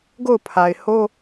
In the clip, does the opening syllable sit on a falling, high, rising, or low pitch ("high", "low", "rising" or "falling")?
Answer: falling